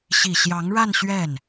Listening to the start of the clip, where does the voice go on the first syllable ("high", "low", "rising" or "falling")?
low